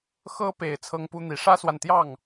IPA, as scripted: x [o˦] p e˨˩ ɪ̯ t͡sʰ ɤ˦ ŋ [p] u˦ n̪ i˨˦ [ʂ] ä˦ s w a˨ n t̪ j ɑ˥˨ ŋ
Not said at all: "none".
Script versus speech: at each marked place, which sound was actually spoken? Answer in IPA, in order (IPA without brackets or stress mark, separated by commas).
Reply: ɤ˦, p, ʂ